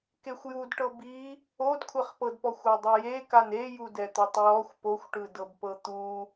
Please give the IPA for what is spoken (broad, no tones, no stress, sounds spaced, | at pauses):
k e xʷ j u d ʈ ɤ b i | o d kʷʰ ɛ χ p ɤ d p ɔ xʷ ɔ dˤ i j e k a n e j u d ɛ t̪ o tˤ j ɔ xʷ p o xʷ ʈ ɯ d ɤ b p ɤ t̪ u